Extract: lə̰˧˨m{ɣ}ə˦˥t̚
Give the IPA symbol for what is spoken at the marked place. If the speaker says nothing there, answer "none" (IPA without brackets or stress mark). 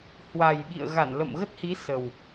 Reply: ɣ